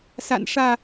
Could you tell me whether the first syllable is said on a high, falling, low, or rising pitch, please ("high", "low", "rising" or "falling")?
low